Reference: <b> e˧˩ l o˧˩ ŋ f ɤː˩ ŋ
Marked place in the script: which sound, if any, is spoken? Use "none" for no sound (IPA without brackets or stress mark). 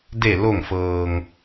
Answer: d